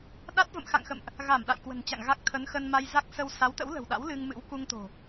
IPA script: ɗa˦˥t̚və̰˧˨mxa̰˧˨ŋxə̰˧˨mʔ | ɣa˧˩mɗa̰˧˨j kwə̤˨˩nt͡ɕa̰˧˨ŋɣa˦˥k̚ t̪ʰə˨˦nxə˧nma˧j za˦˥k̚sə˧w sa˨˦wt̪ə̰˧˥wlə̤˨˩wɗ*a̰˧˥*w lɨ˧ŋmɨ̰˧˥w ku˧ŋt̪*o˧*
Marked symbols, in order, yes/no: yes, no

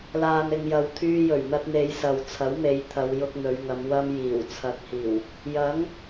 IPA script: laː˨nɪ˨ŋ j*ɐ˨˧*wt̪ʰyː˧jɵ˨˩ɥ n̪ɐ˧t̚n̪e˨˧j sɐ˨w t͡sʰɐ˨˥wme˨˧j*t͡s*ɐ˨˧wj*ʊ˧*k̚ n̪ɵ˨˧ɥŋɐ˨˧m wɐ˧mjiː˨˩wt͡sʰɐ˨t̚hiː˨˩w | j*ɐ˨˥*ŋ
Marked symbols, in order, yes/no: yes, no, yes, yes

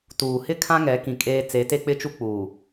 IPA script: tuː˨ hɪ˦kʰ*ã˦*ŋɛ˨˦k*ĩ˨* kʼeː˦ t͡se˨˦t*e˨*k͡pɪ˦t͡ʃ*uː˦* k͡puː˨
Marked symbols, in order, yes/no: yes, yes, no, no

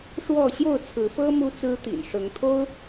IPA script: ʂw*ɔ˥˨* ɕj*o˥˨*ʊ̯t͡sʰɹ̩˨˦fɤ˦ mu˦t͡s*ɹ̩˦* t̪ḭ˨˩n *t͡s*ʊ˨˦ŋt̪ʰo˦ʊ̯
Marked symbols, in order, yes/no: yes, yes, yes, no

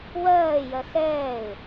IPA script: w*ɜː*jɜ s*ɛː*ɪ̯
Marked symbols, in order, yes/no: yes, yes

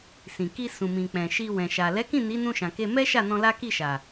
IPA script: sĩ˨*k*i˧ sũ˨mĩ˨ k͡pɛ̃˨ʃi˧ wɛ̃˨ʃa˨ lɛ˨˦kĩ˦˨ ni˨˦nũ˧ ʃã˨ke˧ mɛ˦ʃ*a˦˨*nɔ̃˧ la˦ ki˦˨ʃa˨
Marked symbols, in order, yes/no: yes, yes

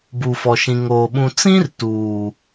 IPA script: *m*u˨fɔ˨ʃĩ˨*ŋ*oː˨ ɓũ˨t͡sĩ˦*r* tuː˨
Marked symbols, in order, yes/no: no, yes, yes

